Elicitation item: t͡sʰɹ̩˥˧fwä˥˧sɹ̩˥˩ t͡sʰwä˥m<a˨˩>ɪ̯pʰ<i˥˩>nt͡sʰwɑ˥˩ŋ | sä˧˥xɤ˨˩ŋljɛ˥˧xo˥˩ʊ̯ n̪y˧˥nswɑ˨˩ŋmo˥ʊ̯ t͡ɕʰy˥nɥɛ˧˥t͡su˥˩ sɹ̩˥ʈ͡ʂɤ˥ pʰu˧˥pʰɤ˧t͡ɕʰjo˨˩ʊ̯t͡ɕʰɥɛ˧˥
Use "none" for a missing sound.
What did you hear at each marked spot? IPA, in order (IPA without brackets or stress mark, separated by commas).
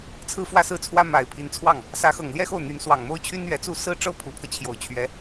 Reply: a˨˩, i˧˥